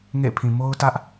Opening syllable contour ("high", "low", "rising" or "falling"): falling